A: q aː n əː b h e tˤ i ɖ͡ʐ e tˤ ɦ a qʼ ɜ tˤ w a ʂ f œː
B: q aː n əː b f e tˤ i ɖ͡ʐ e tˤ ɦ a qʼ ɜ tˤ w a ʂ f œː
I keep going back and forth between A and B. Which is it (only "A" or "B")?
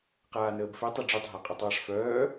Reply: B